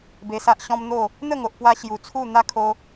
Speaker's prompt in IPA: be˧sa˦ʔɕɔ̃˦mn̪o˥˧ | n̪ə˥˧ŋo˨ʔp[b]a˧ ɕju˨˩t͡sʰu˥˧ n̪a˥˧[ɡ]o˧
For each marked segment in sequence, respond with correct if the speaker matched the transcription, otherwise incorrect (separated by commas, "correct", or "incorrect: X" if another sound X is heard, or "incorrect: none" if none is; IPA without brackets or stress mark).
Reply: incorrect: w, incorrect: kʰ